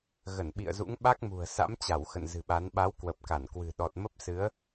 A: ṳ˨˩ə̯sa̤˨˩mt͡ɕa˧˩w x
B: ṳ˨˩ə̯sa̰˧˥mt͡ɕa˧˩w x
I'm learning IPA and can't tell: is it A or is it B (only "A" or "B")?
B